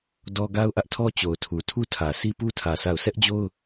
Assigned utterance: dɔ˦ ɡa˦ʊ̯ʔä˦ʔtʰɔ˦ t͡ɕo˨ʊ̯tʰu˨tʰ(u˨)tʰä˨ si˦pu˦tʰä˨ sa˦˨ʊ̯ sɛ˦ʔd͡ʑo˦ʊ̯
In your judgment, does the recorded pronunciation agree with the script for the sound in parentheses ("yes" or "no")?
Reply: no